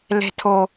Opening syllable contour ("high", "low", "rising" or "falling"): low